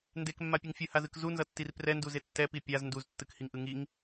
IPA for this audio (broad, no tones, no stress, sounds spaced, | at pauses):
n d e k mː a pʲ e ŋ fʲ ɯ h a z ɯ k z u n z ʌ tː i r p r ɛ n d u z e tː ɛ p i pʲ a z n d u z tː ɯ k h i ŋ ʔ ɯ ŋ i ŋ